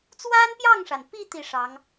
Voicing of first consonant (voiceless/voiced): voiceless